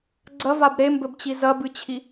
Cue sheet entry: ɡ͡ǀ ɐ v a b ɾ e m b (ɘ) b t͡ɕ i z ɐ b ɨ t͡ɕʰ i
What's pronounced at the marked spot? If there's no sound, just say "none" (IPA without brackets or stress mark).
ɘ